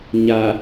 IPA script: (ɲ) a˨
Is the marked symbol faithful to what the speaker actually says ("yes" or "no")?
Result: yes